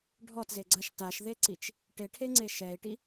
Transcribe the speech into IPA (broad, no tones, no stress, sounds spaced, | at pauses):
ɖʱ ɔ t z e ɡ͡ǀ a ʃ t a ʃ ð e ǀ i t͡ʃ | ʈ e ʈʰ e ŋ͡ǀ e ʃ ɛ i̯ ʈ i